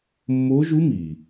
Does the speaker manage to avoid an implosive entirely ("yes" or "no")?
yes